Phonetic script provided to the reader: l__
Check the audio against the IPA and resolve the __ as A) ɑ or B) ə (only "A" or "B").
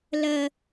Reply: B